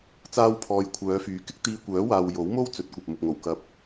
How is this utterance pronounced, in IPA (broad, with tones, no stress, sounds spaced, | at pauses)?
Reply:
t͡s aː˥ w pʰ ɔː˧ j kʷʰ œː˨˧ f yː˨˥ k ɪ˥ k̚ t̪ iː˧ kʷ œː˨˥ w aː˨ w j o˨˥ w m o˥ w t͡s ɵ˨˥ t̚ kʷ ɐ˨ p̚ m ʊ˨ k̚ ŋ o˨˩ w k ɐ˨ p̚